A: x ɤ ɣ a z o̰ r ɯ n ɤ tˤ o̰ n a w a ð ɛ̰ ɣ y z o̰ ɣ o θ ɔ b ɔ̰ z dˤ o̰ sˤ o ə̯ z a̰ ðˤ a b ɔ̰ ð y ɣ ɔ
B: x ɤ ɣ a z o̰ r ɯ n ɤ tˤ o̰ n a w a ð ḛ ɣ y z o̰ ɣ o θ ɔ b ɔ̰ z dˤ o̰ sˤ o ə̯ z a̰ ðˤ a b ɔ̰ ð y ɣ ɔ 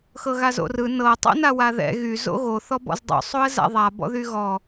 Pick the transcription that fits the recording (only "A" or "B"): A